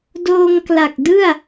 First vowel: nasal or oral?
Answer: oral